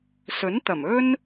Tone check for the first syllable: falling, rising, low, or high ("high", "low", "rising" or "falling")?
rising